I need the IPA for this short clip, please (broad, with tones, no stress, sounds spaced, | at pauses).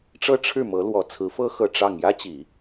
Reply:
ʈ͡ʂ ɤ˥ ʈ͡ʂʰ ɻ̩˥˩ m ɤ˧˥ l w ɔ˨˩ t͡sʰ ɹ̩˧˥ f ɤ˥ x ɤ˥˧ ʈ͡ʂ ɑ˥˩ ŋ j ä˥ t͡ɕ i˨˩˦